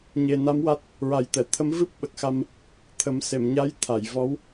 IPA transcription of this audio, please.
ɲ e˨˩ n a˧˥ m w a˦˥ t̚ | ɹ a˨˩˦ j t̪ ɛ˨˩˨ t̪ʰ ə˧˥ m v ɨ˦˥ p̚ ɓ ə˨˩ k̚ x a˧ m | t̪ʰ ə˨˩˦ m s e˨˩˨ m ɲ a˧˥ j t̪ʰ a˨˩˨ j v ɔ˧˥ w

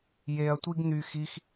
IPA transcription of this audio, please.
j e ɐ̯ tʷ i ɡ n̪ y x i x

